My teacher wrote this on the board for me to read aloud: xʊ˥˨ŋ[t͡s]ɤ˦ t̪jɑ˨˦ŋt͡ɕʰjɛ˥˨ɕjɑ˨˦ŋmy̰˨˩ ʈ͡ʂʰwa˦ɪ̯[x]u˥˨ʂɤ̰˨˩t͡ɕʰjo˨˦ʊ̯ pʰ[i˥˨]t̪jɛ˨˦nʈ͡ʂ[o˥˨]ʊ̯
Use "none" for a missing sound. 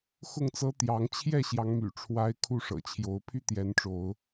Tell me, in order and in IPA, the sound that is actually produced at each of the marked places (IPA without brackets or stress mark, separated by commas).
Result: t͡s, kʰ, y˥˨, o˨˦